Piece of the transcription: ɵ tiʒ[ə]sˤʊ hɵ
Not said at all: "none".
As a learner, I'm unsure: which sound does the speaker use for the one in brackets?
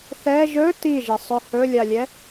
ə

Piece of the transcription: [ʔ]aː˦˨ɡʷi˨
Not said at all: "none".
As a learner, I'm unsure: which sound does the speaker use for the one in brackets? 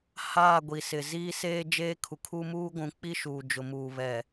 h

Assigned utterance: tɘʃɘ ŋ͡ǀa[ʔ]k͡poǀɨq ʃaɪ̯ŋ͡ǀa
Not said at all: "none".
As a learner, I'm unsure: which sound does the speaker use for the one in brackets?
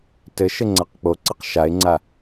q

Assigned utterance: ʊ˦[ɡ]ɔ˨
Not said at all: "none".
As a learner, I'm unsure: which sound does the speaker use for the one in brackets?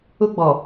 ɡ͡b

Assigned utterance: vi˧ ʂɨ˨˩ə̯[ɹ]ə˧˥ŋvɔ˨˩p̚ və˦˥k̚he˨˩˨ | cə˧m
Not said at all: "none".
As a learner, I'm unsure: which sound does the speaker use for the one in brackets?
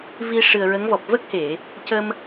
ɹ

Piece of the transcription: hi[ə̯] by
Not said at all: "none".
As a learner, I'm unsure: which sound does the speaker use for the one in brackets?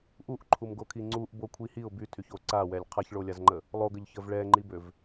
ʊ̯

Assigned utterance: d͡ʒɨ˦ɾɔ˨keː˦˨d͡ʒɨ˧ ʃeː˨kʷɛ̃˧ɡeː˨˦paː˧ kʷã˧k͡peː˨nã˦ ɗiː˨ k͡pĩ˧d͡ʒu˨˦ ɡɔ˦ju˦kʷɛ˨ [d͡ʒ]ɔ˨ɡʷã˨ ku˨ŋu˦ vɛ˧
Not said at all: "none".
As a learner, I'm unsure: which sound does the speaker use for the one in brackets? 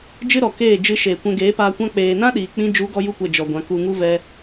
d͡ʒ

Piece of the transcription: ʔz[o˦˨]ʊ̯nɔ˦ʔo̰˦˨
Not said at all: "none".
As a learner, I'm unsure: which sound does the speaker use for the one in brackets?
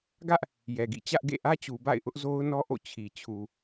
o˦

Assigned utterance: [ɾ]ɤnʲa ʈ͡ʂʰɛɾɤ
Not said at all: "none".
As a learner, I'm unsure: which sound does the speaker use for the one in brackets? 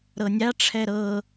ɾ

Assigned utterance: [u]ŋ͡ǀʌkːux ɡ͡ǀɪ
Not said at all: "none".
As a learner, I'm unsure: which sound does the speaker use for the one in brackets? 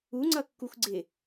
u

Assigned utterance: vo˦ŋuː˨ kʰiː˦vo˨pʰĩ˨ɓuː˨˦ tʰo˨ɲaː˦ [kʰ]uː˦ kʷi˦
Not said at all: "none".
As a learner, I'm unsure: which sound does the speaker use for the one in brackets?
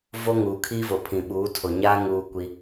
ŋ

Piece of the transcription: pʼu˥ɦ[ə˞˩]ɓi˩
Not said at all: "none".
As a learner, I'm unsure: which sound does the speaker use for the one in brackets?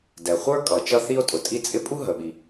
ə˩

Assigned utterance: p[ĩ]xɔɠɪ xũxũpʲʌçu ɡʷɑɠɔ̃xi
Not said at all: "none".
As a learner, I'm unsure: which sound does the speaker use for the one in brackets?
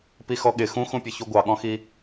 i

